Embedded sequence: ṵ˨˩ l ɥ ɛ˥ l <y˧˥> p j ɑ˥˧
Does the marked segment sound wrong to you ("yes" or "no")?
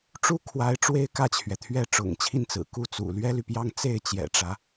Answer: yes